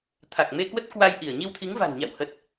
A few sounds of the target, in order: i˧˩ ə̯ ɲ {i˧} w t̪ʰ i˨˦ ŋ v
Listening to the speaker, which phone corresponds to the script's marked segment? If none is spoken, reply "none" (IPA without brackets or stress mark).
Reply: i˧